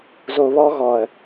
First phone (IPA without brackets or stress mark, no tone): z